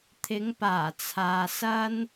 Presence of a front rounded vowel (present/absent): absent